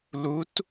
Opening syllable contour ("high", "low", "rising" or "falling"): rising